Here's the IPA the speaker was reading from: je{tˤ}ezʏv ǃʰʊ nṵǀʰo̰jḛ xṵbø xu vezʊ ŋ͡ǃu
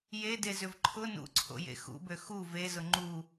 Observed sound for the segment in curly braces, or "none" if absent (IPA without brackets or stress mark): d